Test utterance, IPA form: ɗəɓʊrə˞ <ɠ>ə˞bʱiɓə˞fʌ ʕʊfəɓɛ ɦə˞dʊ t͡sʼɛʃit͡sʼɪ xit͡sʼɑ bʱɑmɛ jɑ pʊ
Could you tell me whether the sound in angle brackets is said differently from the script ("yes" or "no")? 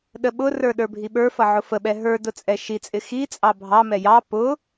yes